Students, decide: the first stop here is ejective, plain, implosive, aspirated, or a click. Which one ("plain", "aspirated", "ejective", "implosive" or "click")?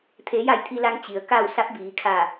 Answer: aspirated